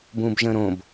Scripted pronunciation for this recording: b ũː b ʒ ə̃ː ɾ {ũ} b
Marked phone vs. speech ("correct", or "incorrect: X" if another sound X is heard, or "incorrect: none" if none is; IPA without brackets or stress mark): incorrect: õ